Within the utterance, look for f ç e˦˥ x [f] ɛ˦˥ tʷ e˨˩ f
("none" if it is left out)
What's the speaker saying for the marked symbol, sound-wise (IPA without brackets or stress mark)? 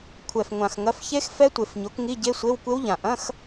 f